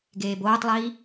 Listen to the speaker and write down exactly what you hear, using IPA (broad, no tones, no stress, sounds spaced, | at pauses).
ɡ eː b oː tˤ lˠ iː